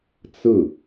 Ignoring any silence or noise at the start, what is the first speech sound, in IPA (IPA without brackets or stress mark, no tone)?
t͡s